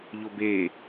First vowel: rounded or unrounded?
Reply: rounded